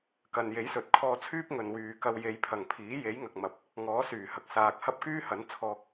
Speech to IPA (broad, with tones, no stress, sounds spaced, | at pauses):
k ɐ˨ n j e˨˥ j s ɵ˨ t̚ kʰ ɔː˧ t͡sʰ yː˥ p̚ ŋ ɵ˨ n w yː˨ k ɐ˧ w j e˨˧ j pʰ ɐ˨˩ ŋ pʰ iː˨˥ j e˨˥ j ŋ ɐ˨ k̚ m ɐ˨ p̚ | ŋ ɔː˨˥ s yː˨˩ h ɐ˨ k̚ s aː˨ k̚ h ɐ˥ p̚ k yː˥ h ɐ˨˥ n t͡sʰ ɔː˧ k̚